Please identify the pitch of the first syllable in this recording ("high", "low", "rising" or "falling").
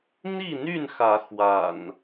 falling